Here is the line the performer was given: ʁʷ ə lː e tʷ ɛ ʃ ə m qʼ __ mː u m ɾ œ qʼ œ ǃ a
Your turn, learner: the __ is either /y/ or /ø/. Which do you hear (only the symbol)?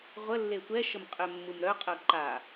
ø